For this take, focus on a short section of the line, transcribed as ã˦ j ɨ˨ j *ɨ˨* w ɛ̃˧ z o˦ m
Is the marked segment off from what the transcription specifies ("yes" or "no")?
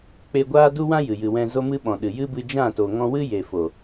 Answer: no